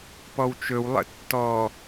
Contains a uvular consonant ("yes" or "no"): no